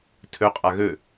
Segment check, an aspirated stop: present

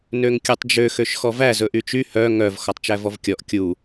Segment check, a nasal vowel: absent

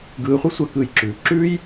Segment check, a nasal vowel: absent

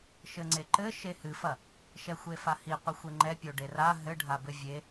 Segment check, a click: present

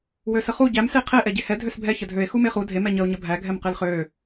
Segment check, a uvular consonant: present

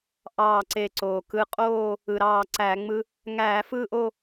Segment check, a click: present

